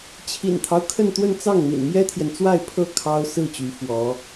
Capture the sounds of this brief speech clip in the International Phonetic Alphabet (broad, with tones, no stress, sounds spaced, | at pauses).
t͡ɕʰ ḭ˨˩ n t̪ʰ ɑ˦ ʊ̯ kʰ ə˥˧ n t̪ w ə˥˧ n t͡s ɑ˥˩ ŋ n̪ ḭ˨˩ n m j ɛ˥ t̪ʰ j ɛ˨ n t͡s w a˥˧ ɪ̯ pʰ ɤ˥˩ kʰ ɑ˥ ʊ̯ s ɹ̩˥˩ t͡ɕ y˧˥ f w ɔ˧˥